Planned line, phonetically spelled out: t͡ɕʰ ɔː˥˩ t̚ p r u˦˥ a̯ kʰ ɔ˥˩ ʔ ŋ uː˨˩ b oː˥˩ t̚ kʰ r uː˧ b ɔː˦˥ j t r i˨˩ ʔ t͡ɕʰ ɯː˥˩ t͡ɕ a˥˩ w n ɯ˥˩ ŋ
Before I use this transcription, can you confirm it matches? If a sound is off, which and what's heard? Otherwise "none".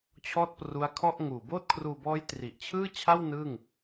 t͡ɕ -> t͡ɕʰ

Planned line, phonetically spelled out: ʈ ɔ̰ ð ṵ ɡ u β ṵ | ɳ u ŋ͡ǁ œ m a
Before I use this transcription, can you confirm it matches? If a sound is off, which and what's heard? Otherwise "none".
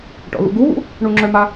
none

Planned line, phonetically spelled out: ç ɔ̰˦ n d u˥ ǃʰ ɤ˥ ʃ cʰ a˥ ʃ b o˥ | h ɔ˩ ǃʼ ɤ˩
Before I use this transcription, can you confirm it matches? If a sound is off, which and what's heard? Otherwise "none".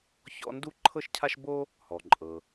none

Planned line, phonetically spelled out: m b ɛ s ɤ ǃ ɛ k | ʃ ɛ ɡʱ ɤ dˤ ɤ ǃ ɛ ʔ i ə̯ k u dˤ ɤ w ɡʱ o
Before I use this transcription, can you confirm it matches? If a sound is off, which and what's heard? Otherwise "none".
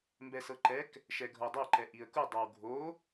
none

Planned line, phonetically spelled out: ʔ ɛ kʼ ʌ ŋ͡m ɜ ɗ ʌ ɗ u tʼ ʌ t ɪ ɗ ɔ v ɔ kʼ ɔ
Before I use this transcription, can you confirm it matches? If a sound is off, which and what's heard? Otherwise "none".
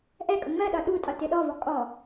none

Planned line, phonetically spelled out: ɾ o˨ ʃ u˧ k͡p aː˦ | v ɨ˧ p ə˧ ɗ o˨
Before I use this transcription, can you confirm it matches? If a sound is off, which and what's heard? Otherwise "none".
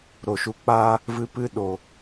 ə˧ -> ɨ˧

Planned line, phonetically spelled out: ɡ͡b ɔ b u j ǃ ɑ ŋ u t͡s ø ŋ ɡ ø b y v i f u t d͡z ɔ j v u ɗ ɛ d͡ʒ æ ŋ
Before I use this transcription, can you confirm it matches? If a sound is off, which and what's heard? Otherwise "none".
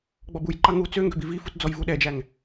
y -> i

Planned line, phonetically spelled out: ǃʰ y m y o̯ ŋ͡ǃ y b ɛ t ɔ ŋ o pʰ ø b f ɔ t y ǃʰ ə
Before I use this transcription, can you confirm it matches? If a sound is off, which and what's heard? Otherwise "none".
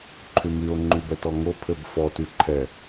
ə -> ɛ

